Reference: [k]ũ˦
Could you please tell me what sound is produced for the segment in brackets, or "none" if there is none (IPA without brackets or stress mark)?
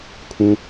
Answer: kʰ